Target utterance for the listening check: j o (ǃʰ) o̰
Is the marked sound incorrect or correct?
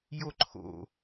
correct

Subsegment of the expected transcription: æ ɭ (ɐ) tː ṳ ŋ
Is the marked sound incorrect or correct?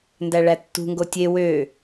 incorrect: æ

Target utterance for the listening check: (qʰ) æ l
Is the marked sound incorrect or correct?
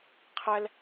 correct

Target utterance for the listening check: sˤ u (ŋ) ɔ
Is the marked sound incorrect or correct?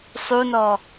incorrect: n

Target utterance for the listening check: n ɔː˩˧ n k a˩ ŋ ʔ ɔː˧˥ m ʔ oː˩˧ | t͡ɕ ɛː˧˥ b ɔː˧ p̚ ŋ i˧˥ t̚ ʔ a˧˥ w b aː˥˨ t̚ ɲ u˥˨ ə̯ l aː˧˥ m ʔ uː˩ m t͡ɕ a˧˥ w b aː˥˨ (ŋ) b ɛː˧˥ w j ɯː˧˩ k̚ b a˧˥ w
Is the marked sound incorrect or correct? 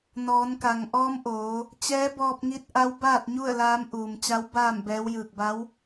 incorrect: m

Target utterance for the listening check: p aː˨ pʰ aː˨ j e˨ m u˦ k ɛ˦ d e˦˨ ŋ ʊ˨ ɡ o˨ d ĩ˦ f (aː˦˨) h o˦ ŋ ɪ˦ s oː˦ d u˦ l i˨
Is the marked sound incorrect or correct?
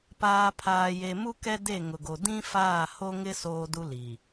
correct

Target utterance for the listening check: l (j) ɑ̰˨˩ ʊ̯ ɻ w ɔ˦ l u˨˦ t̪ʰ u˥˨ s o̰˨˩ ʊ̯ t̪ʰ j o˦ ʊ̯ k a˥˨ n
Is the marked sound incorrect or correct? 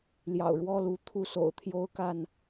correct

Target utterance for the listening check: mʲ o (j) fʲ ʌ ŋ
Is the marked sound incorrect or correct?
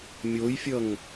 correct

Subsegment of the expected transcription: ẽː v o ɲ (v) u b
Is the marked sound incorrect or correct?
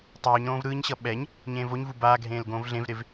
correct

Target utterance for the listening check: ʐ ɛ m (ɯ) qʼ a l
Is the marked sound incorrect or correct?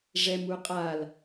incorrect: u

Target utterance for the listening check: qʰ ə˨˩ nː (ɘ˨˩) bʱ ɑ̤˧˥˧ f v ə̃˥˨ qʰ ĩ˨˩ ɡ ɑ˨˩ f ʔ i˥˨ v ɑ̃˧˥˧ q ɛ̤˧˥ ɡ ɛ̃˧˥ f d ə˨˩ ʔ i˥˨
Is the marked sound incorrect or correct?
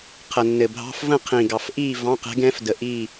correct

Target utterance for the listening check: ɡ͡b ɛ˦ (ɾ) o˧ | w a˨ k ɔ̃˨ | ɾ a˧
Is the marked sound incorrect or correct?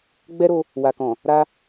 correct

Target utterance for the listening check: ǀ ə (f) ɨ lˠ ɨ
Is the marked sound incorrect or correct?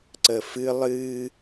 correct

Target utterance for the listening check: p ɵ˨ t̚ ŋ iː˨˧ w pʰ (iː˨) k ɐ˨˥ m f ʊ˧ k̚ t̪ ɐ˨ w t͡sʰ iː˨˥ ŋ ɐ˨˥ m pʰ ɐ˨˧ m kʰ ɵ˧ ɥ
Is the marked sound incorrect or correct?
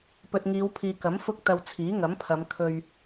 correct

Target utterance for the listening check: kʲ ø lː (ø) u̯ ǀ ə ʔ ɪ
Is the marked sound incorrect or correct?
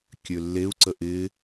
incorrect: e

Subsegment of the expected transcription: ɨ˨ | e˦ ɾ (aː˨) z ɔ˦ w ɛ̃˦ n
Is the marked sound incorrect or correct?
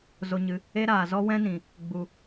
correct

